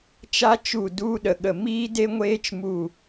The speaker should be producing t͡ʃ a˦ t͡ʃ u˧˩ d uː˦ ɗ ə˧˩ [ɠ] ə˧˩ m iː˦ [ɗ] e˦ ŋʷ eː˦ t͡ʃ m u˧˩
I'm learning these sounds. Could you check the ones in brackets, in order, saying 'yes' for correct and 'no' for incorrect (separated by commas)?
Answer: yes, no